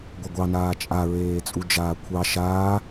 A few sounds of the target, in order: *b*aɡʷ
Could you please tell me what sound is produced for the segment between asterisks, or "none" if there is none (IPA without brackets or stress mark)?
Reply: ɡʷ